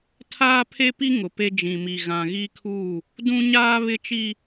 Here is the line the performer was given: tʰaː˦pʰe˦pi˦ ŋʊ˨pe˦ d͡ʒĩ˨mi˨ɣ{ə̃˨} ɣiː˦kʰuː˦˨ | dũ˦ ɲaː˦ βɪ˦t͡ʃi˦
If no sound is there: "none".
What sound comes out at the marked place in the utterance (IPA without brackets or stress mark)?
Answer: ã˨